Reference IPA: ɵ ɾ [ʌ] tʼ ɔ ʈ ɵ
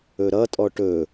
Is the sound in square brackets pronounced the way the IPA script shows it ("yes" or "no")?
yes